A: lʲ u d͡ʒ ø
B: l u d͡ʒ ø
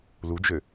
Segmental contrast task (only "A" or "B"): B